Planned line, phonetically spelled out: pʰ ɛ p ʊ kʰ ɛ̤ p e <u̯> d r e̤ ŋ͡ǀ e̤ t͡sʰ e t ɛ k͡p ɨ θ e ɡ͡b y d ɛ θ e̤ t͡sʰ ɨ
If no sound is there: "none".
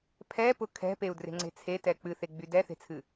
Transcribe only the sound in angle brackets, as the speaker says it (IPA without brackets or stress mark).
u̯